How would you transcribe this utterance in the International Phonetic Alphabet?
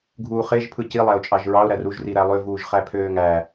ɡʱ uː χ e ʒ pʰ ɯ c i lˠ æ ʊ̯ t͡ʃʼ ɑ ʒ ɹ ɑ ʊ̯ ɾ æ r u ʒ r i ɾ æ lˠ ø v uː ʒ χ æ pʰ øː ŋ æ

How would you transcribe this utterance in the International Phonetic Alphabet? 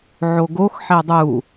ʕ o ɡ o x ħ ɛ dˤ u

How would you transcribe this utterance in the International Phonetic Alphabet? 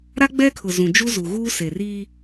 ɾ a˦ ɡ͡b ɛ˦ kʰ ʊ˨ z ũ˨ d͡ʒ u˦ z u˨ ɣ uː˦ s e˨ r iː˦

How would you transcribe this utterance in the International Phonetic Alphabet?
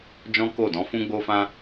d͡ʒ ɔ̃˦ k o˦˨ d ɔ̃˨˦ f ũ˦ ɡ͡b o˦ f ã˦

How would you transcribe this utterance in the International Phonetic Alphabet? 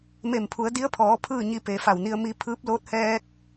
m e˧˩ m pʰ u˩˧ ə̯ d i˧˥ ə̯ pʰ ɔː˩˧ pʰ ɯː˥˨ ɲ i˧ p e˩ f a˧˩ w n i˧ ə̯ m i˧ pʰ ɯː˧˥ p̚ l oː˧˥ t̚ h ɛː˧ k̚

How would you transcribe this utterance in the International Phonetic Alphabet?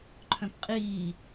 ǃʰ œ̃ p qʼ iː

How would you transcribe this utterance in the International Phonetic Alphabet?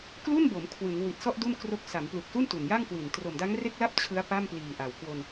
k l u˥˩ n b o˩˦ m kʰ w ɯ˩˦ ŋ w i˨˩ t̚ s ɔ˥˩ ʔ d u˥˩ n k r o˦˥ k̚ s a˩˦ m p l u˨˩ k̚ s u˥˩ n t u˨˩ n j a˥˩ ŋ k w i˨˩ n t r o˨˩ m d a˦˥ ŋ r e˥˩ k̚ l a˥˩ p̚ t͡ɕʰ ɯ˦˥ a̯ p a˥˩ m p l iː˨˩ ʔ a˨˩ w k w o˧ n

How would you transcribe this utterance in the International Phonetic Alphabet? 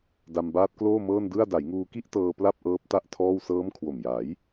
d a˧ m b aː˦˥ t̚ k l oː˥˩ m ɤː˥˩ n d ɯ˥˩ a̯ d a˩˦ j ŋ uː˧ k i˥˩ ʔ t ɤː˧ p l a˥˩ p̚ ʔ ɤː˦˥ p̚ t a˥˩ ʔ tʰ ɔː˥˩ w s ɤː˦˥ m kʰ w o˨˩ m j a˩˦ j

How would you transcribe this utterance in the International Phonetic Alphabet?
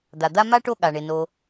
d̪ a˩ d̪ a˦ m a˥ ʈ o˦ ɠ a˩ ɳ e˩ n o˩

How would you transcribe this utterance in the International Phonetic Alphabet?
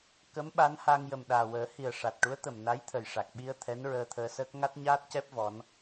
k ə˧˥ m ɓ a˧˥ n h a˧ ŋ j ə˨˩ m ɗ aː˨˩ w əː˨˩˦ h i˨˩ ə̯ ʂ a˨˩ t̚ ʈ u˧˥ ə̯ t̪ ə˨˩ m n a˧˥ j t̪ʰ ə˨˩ j ʂ a˨˩ k̚ ɓ i˧ ə̯ t̪ʰ ɛ˧˥ n ɹ əː˧ t̪ʰ əː˧ s əː˦˥ k̚ ŋ a˦˥ t̚ ɲ aː˦˥ t̚ c ɛ˦˥ p̚ v ɔ˧˥ n

